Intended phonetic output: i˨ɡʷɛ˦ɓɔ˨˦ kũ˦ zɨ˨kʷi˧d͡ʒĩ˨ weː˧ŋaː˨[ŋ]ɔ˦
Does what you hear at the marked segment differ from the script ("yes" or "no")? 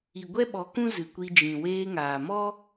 yes